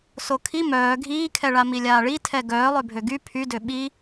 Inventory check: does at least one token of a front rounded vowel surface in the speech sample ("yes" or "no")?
yes